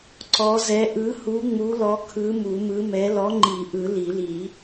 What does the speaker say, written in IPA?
ǀ ɔ˨˥ z ɛ˨˥ ʔ ɯ˨˥ h u˨˥ ŋ͡m u˨˥ l ɔ˨˥ kʰ ɯ˨˥ m u˨˩˦ m ɯ˨˥ m ɛ˨˥ l ɔ˨˥ ŋ͡ǃ i˨˩˦ ʔ ɯ˨˩˦ l i˨˩˦ l i˨˩˦

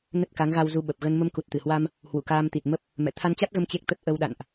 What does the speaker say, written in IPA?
n ə˦˥ t̚ k a˨˦ ŋ ɣ a˧ w z u˧ ɓ ə˨˩ p̚ ɣ ə˧ n m ə˧ m k u˨˩ t̚ t̪ ɨ˧˩ h w a˧ m | h w ṵ˧˨ k aː˧ m t̪ i˨˩ t̚ m ə˦˥ p̚ | m ɛ̰˧˨ t̪ʰ a˧ n t͡ɕ a˦˥ t̚ ɣ ə˧ m t͡ɕ e˦˥ k̚ t̪ ə˦˥ t̚ ʔ ə˧ w ɗ a̰˧˨ n ʔ

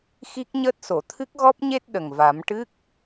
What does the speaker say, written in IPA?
x i˦˥ k̚ ɲ əː˦˥ t̚ s o˨˩˨ t̪ʰ ɨ˦˥ k̚ ɣ ɔ˦˥ p̚ ɲ e˦˥ t̚ ɗ ə˨˩ ŋ v a˨˩˦ m ʈ ɨ˦˥ k̚

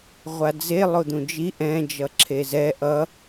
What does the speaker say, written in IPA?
ʁʷ a d͡z e lˠ o d̪ ũ d͡ʒ i ʔ ɛ̃ d͡ʒ ʌ ǁʰ e z ɛ ʔ ʌ

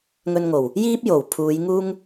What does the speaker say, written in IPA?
ŋ ɵ˧ n ŋ o˨˩ w | j iː˥ p̚ j o˨˩ w pʰ uː˨˧ j ŋ uː˥ ŋ

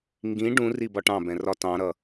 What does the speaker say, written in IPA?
ŋ ɡ ĩ ɖ ũ r i b ɒ ʈ ɑ̃ b ɛ̃ r ɒ t ɑ̃ ɾ ʌ

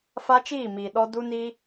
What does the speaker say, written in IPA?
f a˦ t͡ʃ iː˦˨ m iː˨ ɗ ɔ˧ d u˦ n i˦

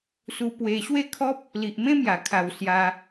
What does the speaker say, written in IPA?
s u˧ p w e˧ ɕ w e˥˧ kʰ ɔ˦ p̚ | l i˨ ʔ m ẽ˦ m j a˨˩ kʰ a˨˩ w s j a˧

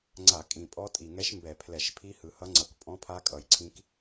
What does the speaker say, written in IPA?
ŋ͡ǀ a˧˩˧ kʼ ĩ˨˩ pʼ ɔ˦˥ tʼ i˨˩ ŋ ɛ˦˥ ʃ m b ɛ˧˩˧ pʰ l ɛ˧˩˧ ʃ pʰ i˦˥ h ɯ˨˩ h ʌ˦˥ ŋ͡ǀ ʌ˧˩˧ k pʼ ɔ̃˦˥ pʰ a˦˥ kʼ ʌ˨˩ j ǀʰ ĩ˦˥ k

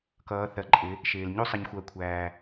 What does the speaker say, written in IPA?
k ʌː˩˧ θ ɜ˩ ǃʼ ɪ˩˧ | ʃ ɪː˩ l ɲ u˥˨ sˤ ɪ˩˧ ɲ xʷ ɜ˩˧ kʷʰ æː˩

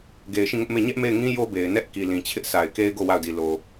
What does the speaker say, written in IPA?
ɡ e˨ ɪ̯ ʃ ĩ˦˨ ŋ ʊ˦ ʔ m e˦˨ ɲ ɛ˦ ʔ m e˦˨ ɪ̯ ŋ ĩ˦ j o˦ b e˨ ɪ̯ n ɛ˦ ʔ k i˨ l ĩ˨ t͡ɕʰ ɪ˦ ʔ s a˨ ɪ̯ k e˦ ɪ̯ ɡ o˦˨ w a˦˨ ʊ̯ d i˨ l o˨

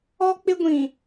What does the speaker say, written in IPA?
ɔ˦ k͡p ɪ˦ ɡʷ ĩ˨

